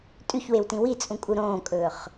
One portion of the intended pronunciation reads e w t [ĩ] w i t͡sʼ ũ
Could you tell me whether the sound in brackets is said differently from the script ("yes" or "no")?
no